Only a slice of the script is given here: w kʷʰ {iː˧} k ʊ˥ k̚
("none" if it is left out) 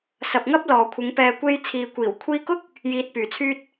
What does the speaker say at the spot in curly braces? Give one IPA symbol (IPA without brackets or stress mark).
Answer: iː˧